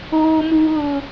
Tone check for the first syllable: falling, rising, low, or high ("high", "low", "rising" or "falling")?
high